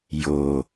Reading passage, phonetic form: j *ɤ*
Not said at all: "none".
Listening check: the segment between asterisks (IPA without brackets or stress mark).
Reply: o